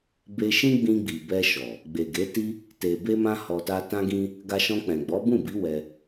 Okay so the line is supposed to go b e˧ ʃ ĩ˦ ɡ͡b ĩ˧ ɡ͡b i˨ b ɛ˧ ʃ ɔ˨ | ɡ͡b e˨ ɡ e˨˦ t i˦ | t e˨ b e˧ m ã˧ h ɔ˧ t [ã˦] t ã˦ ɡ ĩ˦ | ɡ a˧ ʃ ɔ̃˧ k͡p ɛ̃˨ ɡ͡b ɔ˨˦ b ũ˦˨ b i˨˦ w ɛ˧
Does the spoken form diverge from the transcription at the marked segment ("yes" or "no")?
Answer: yes